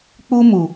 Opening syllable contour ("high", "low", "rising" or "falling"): high